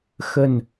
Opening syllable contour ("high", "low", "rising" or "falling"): low